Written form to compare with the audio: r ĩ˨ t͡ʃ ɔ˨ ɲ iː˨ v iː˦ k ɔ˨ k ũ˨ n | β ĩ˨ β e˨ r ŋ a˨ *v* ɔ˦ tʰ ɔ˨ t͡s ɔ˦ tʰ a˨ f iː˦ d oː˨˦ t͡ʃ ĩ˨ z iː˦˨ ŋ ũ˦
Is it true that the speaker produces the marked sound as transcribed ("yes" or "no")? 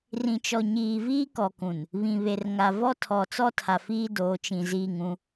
yes